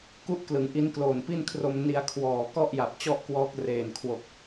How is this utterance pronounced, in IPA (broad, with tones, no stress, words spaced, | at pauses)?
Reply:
ku˥˩ʔklɯ˩˦ŋʔi˦˥n kloː˨˩npi˥˩nkʰro˧m ni˧a̯kʰwɔː˨˩ kɔ˥˩ʔja˨˩p̚ t͡ɕɔ˥˩ʔkwɔː˦˥k̚ reː˨˩nkʰwo˨˩k̚